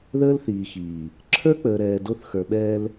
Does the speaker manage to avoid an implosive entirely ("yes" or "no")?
no